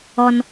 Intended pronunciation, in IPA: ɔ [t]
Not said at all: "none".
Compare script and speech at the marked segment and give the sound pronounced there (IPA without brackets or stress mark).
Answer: n